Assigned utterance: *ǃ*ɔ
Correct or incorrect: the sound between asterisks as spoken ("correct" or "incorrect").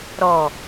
incorrect